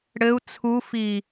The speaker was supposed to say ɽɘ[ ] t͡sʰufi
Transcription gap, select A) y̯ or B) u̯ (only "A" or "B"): B